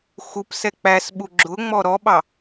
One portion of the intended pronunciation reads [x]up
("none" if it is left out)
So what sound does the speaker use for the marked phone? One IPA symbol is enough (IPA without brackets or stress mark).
x